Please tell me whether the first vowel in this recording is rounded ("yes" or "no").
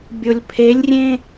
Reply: yes